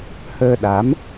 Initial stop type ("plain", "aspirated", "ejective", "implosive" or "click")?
implosive